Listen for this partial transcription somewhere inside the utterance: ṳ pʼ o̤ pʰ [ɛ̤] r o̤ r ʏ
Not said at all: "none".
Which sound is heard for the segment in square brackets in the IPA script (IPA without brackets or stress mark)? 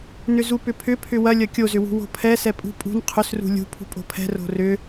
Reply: ɛ̤